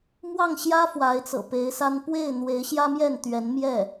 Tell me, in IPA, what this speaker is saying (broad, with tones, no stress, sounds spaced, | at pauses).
m w ɑ˥˩ ŋ ɕ j ä˥ f w a˧˥ ɪ̯ t͡s ɤ̰˨˩ p e˧˥ ɪ̯ s a˥ n p w e˥˩ ɪ̯ n̪ w e˧˥ ɪ̯ ɕ j ä˥ m j ɛ˥˩ n t̪ ɥ ɛ˧˥ n m j ɛ˥˩